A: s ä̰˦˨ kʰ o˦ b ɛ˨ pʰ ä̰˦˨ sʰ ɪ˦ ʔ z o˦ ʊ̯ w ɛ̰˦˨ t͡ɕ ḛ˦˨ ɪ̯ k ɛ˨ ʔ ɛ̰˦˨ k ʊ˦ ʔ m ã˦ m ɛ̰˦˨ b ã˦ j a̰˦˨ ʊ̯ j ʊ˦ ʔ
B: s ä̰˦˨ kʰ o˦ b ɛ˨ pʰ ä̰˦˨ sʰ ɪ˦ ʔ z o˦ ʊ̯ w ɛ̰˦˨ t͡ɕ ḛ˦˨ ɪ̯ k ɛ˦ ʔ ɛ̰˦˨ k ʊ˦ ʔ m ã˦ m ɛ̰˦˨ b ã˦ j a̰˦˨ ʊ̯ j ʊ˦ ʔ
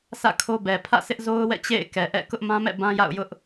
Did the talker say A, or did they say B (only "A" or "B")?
A